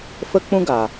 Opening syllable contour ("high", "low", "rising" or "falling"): high